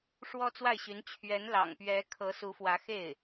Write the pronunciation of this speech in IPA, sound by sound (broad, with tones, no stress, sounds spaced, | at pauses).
ʂ w ɔ˥ t͡s w a˥˩ ɪ̯ ɕ y˧˥ n t͡ɕʰ ɥ ɛ˧˥ n l ɑ̰˨˩ ŋ p ɥ ɛ˧˥ kʰ ɤ˧˥ s u˧˥ f w ä˧˥ x e˥˩ ɪ̯